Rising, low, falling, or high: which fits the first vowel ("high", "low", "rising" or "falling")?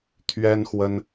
high